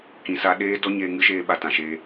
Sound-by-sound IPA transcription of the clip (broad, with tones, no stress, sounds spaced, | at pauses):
k ĩ˨ s a˧ ɗ eː˦ d ɔ˦ ɲ eː˧ ŋ ɨ˦ ʃ eː˧ ɓ a˨ t ã˨ ʃ eː˧